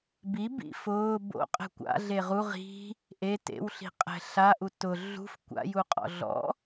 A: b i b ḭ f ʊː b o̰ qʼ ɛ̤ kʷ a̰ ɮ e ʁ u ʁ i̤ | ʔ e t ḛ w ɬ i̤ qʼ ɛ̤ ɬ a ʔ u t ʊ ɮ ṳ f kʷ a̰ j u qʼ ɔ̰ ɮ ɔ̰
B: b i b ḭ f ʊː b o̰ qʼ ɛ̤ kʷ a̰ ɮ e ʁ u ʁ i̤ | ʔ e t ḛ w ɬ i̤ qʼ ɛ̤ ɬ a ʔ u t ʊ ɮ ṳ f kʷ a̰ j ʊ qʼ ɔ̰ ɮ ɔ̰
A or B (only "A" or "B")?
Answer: A